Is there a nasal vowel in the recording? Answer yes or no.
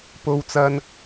no